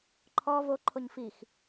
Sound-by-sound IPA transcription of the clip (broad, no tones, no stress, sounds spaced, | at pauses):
ǃʰ ɔ v o ǃʰ o ɲ f i x